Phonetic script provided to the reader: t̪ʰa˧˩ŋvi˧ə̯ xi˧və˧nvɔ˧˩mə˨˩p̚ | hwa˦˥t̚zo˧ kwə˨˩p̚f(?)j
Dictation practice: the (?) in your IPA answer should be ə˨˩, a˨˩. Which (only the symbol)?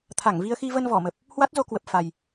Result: a˨˩